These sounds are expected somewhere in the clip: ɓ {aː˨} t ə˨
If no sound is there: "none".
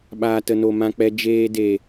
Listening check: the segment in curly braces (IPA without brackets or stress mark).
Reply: aː˨